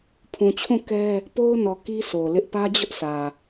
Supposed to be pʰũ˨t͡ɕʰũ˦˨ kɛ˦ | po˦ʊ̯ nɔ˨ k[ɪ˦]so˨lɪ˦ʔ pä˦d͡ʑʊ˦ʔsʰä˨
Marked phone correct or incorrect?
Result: incorrect: i˦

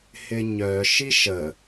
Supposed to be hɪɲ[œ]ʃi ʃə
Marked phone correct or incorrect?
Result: correct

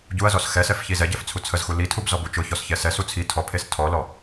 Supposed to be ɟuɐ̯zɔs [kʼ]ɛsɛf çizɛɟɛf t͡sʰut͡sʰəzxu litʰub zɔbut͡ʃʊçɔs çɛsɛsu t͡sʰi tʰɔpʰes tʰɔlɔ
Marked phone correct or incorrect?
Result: incorrect: x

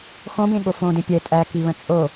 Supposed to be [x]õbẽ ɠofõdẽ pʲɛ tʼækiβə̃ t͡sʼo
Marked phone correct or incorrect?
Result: correct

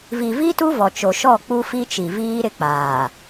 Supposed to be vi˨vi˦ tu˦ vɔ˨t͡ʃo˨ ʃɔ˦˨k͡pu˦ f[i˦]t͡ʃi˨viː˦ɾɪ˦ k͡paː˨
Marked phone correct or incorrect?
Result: correct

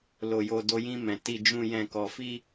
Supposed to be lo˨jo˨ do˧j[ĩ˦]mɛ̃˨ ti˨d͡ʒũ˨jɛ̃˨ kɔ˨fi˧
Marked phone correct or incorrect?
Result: incorrect: ĩ˧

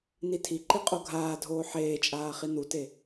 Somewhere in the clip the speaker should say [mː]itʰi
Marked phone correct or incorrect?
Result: incorrect: n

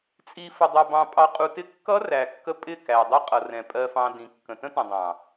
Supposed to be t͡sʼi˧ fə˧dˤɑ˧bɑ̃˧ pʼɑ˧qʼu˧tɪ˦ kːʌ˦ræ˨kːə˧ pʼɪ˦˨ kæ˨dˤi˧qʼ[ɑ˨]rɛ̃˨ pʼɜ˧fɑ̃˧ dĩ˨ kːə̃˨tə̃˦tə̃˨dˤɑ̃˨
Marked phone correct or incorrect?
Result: incorrect: ʌ˨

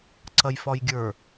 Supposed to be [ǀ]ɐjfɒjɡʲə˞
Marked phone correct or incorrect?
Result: correct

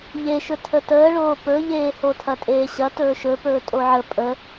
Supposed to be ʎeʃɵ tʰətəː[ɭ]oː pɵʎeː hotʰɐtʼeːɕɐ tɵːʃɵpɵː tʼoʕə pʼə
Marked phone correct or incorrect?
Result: correct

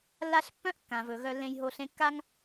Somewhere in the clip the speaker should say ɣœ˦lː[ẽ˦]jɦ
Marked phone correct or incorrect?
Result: correct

